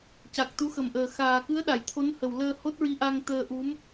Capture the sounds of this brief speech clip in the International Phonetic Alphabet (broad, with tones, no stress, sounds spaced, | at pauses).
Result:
c a˨˩ k̚ t̪ u˧˥ x ə˨˩ m ʔ əː˨˩ x aː˨˩ k ɨ˧˥ ə̯ ɗ a˨˩˨ j t̪ʰ o˧˥ n h ə˨˩ w l əː˧ h o˦˥ t̚ ɹ i˧˥ ʔ a˧ ŋ t̪ əː˧ ʔ u˧˥ m